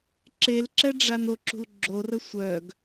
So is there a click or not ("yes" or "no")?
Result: yes